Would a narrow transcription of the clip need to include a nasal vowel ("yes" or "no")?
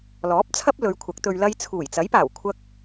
no